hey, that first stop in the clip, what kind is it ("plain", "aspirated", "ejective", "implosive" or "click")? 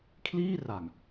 aspirated